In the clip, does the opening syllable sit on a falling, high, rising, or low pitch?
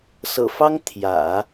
low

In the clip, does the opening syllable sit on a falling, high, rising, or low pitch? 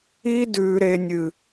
high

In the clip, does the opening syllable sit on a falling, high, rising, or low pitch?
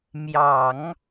low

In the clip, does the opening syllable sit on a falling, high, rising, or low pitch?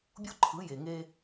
high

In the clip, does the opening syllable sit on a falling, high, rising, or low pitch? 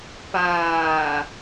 low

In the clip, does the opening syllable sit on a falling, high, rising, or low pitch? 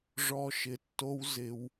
high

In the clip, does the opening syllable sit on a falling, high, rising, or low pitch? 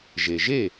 low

